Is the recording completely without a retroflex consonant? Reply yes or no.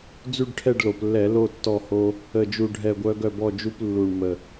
no